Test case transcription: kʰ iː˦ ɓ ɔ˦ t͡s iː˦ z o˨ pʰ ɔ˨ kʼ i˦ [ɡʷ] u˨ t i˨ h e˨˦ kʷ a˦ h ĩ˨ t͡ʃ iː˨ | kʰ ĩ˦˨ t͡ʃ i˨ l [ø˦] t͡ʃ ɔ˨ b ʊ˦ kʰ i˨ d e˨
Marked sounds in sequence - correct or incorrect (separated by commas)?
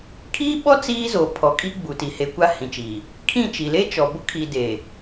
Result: incorrect, incorrect